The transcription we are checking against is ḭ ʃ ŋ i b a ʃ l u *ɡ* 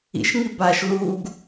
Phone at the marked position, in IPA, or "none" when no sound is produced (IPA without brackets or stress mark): ɡ